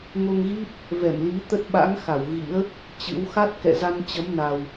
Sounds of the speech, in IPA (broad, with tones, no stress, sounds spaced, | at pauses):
ŋ o˧ ŋ ɣ i˦˥ p̚ | v ɛ˧˩ m l i˨˦ t̪ ə˦˥ t̚ ɓ a̰˧˥ ŋ x a˧˩ w ɣ ḭ˧˥ ə̯ | t͡ɕ ɨ̰˧˥ w x a˦˥ t̚ k ɛ̰˧˨ z a˧ n t͡ɕ ə˨˦ m n a˨˩ w